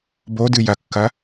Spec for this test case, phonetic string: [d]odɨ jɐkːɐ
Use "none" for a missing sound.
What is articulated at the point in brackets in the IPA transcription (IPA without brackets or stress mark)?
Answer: b